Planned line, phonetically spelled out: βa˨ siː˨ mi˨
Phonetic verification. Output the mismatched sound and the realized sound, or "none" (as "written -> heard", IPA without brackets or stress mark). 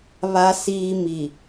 none